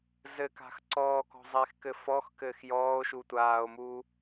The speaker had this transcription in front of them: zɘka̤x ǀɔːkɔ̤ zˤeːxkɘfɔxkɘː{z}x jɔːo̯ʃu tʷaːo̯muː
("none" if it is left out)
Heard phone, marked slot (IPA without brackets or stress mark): none